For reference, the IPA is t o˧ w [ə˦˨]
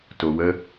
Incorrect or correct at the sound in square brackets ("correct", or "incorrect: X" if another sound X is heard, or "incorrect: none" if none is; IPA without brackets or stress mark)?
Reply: incorrect: ə˦